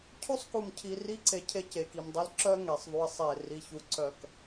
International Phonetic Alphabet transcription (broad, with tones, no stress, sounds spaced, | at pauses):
cʰ u˦ sˤ k u˨ m cʰ i˨ r i˦ ǀ e˨ cʰ e˦ c e˨ k i˨ m dˤ i˦ l ǁ œ˦ ŋ e˨ sˤ ðˤ u˦ ɪ̯ sˤ e˦˨ r i˦ ç u˦ ǀ œ˦˨ k